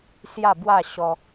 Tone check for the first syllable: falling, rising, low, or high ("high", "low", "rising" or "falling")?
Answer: falling